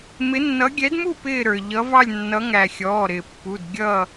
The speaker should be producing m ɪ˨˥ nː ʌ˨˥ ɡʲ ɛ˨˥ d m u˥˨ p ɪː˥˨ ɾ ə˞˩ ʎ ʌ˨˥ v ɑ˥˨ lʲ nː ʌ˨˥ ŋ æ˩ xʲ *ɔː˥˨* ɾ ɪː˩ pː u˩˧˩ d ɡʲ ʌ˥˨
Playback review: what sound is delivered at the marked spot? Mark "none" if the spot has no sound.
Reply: ɔː˩˧˩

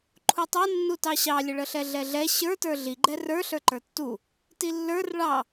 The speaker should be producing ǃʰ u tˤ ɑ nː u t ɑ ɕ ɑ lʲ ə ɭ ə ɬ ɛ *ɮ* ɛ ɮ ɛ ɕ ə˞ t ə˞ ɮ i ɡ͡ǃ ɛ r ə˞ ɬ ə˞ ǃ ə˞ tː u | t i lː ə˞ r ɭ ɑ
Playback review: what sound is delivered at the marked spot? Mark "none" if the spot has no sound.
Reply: ɮ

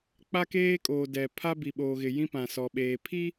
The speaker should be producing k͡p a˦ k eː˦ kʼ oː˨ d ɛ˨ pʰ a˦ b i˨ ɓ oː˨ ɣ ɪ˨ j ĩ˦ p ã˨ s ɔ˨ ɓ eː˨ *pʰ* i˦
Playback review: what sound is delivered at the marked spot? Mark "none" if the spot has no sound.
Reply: pʰ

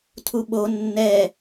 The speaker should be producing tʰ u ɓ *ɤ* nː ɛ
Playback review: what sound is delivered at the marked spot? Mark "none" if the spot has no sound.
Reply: o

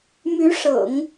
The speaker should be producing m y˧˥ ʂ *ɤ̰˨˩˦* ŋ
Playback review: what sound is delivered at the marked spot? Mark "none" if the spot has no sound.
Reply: ɤ̰˨˩˦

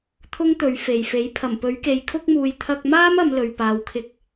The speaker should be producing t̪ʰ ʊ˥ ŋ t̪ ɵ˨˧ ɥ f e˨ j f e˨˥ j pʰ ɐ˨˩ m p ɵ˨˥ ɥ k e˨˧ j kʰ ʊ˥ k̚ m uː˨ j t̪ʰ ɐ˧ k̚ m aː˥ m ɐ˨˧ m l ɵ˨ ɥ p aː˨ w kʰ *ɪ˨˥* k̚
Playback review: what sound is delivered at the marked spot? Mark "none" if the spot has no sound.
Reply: ɪ˨˥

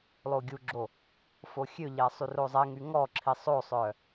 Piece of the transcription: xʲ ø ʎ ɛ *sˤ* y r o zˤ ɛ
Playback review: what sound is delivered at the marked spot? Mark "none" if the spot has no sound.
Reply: sˤ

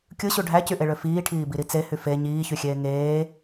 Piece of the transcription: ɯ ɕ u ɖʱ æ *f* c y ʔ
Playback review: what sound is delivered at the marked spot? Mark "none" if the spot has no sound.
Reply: none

